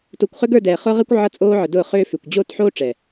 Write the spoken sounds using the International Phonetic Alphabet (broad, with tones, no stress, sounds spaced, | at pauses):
t o˨ kʷ χ ʏ˦ ɡ ə˞˦˨ d ɛː˨ χ ʊː˦ ʁ ɛ˦ kʷ ʕ ʌ˦ t͡sʼ oː˦ ʕ ə˨ d ʊː˦˨ χ ʏː˦ f ʏ˨ kʷ d͡ʑ oː˦ t ħ oː˦ ʈ͡ʂ ɛ˨